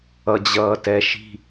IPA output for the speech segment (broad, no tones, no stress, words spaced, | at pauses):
ʌd͡ʑʌːtɛʃi̤